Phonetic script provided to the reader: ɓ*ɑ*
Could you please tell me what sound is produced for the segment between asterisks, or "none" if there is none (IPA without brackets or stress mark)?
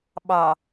ɑ